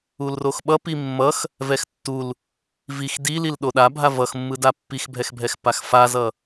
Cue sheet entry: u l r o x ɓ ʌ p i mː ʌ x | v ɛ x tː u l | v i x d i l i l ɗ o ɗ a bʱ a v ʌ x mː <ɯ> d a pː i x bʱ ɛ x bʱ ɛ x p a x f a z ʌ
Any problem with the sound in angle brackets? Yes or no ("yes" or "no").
no